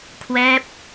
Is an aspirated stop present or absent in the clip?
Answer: present